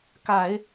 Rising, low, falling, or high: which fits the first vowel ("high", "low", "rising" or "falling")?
low